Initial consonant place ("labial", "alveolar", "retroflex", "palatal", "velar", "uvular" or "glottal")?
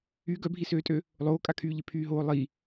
velar